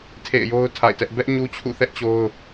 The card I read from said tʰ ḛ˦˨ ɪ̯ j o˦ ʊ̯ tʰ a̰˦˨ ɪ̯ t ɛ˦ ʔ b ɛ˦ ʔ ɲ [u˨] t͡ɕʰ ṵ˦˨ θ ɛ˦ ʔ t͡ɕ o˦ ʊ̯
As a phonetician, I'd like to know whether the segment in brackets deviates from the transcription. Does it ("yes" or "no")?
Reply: yes